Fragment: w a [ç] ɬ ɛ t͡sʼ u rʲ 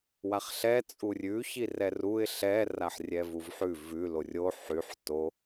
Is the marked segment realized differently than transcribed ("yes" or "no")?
yes